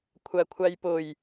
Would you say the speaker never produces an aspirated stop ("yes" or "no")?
no